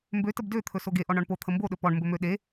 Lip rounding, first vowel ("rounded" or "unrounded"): rounded